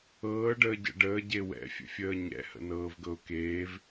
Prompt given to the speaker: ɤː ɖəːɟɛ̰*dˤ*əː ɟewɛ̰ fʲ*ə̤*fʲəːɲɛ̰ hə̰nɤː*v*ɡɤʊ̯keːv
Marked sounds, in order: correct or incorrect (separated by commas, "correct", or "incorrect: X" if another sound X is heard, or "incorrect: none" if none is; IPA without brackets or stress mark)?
incorrect: ɖ, incorrect: ə̰, correct